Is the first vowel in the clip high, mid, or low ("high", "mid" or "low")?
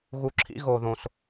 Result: high